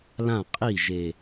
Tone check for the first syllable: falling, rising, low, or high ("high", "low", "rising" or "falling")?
falling